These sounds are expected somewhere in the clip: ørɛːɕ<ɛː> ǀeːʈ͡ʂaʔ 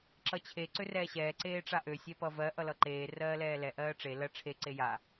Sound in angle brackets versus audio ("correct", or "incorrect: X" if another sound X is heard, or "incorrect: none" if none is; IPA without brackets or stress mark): correct